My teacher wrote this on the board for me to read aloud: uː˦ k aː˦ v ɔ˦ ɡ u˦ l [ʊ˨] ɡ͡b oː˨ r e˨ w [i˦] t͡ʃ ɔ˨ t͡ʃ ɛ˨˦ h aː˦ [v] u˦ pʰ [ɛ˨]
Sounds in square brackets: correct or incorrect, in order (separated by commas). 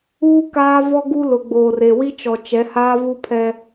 correct, correct, correct, incorrect